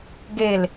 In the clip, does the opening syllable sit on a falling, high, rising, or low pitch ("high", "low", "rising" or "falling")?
low